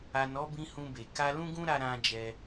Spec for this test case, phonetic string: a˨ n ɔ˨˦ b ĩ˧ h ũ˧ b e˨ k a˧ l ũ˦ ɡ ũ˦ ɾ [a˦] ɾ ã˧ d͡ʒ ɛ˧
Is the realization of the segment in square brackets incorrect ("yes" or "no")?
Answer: yes